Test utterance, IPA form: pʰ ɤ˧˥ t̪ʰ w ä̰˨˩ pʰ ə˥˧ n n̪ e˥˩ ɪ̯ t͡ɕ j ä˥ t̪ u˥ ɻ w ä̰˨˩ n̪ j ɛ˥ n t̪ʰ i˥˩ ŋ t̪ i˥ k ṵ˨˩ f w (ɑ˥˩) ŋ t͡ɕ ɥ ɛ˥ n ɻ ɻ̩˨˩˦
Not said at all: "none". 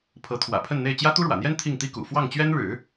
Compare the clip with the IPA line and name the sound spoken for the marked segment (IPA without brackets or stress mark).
ɑ˥˩